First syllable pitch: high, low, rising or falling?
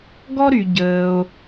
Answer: high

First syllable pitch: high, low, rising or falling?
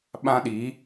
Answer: high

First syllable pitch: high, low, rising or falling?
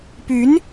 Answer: rising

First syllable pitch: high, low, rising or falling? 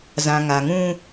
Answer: low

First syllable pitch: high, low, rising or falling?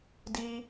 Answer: high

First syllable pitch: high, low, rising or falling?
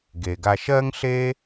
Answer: low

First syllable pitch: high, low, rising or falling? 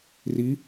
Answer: rising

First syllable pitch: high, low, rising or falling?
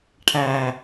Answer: low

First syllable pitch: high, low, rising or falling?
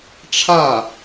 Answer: falling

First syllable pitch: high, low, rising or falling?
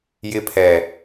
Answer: high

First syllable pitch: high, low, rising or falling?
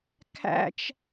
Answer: high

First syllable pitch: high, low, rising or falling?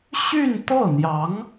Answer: falling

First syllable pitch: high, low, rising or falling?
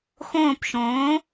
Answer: falling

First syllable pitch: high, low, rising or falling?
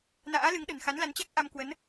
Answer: rising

